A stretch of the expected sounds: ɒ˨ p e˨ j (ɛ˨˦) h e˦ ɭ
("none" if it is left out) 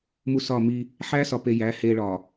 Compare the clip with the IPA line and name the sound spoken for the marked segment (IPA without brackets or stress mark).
æ˨˦